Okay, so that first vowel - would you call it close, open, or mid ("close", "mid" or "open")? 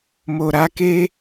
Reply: mid